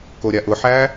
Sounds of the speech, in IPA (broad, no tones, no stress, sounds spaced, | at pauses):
k o ɾʲ a ʔ ʊ ħ æ